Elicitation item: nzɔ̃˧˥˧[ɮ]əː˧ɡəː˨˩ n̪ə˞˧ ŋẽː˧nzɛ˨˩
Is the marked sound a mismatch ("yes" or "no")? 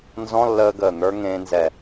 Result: yes